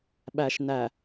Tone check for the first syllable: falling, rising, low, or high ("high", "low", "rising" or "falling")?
low